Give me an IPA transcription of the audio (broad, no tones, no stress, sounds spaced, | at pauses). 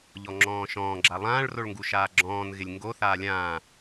ʎ ɔ ŋ͡ǁ ɔ̃ː ʃ ɔ̃ː ɡ͡ǁ a lˠ ãː ɭ r o ɭ ŋ ɡ u ʃ aː ɡ͡ǁ ɔ̃ː n ɣ ɪ lʲ ŋ ɡ o θ aː lʲ ãː